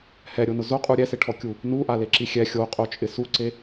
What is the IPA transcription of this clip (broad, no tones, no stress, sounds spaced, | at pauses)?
h ɛ ɾʲ o n ʊ z o qʼ u ɾʲ ɛ s ɪ ʈʰ ɔ kʲ u | n u ʔ a l e ǁ i xʲ ɛ xʲ o qʼ o t͡ʃʼ ɪ s u ǀ e